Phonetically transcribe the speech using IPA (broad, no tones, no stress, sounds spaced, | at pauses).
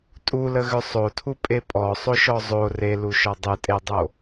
tʼ u l ə ɣ ʏ sˤ o tʰ u pʼ e pʼ ɔ sˤ o ʃ ɔ zˤ o r e l u ʃ ɔ dˤ ɨ tʼ e dˤ o